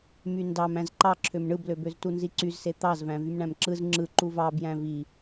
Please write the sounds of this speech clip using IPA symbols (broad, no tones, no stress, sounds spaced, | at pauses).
m y n d ɑ m æ̃ z ǃ ɑ ǁʰ ø m ɳ ɯ b l ø b ø z t u n z i ǀ y z s e t̪ ɑ z v æ̃ v y m ɳ æ̃ m ǁ ɯ z ŋ͡ǁ ɯ ǃ u v ɑ b j æ̃ v i